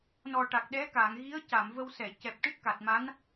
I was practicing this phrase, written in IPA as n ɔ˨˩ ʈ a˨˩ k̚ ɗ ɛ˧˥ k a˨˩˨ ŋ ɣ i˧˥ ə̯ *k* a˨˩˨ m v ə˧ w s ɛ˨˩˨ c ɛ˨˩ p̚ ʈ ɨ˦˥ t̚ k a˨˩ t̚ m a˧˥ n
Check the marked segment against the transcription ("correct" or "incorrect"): incorrect